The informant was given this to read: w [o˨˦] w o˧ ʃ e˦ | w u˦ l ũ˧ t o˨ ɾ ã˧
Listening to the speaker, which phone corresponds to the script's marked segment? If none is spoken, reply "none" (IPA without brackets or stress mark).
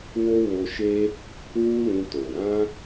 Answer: o˦